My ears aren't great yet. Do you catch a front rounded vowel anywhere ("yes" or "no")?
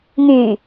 yes